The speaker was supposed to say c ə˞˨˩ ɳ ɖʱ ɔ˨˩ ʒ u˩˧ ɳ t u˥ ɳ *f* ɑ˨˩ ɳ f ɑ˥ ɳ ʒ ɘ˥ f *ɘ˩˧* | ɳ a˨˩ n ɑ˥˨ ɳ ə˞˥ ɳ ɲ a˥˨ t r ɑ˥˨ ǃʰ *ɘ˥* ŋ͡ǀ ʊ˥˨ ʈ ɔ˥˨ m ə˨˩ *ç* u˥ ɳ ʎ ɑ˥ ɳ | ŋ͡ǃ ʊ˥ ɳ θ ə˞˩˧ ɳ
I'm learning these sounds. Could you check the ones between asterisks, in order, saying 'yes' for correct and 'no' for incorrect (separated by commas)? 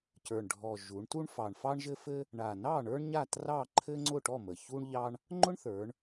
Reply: yes, no, yes, yes